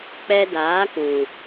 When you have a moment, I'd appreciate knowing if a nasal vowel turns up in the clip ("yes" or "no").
yes